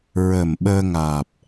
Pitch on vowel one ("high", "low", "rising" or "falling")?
low